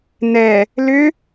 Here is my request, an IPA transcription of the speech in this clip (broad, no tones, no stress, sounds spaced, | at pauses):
n ɛ | l ʏ